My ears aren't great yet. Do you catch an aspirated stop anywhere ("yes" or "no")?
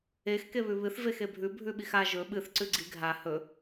no